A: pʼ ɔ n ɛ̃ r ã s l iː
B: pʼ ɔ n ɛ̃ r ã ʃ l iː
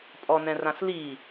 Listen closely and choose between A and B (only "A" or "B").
A